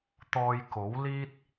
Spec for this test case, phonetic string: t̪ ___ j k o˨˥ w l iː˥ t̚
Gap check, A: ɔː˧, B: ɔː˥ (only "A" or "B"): A